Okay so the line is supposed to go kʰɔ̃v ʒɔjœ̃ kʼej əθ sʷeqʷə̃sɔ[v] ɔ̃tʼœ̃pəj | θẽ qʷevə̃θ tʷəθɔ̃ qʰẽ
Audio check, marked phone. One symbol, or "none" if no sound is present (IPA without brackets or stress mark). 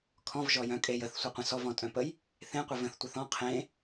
v